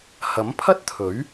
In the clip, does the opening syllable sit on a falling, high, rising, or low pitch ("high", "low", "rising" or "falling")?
rising